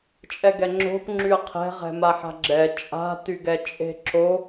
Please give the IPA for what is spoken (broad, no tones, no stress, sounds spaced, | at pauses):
t͡ʃʼ ɛ ɡ ɛ ŋ͡ǁ o̤ p ŋ͡ǁ y ɐ̯ qʰ ɛ̤ ʁ ɛ̤ m a ħ a̤ ɡ͡ǁ ɛ t͡ʃʼ a̤ t y ɡ ɛ t͡ʃʼ e̤ ǁ o